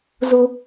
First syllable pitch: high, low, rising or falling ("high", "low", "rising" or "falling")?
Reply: low